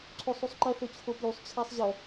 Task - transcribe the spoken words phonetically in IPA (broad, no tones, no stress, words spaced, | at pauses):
ǀʰosˤusˤǃɐ θɵt͡ɕʰopjusˤ t͡ɕʰasˤʑɐ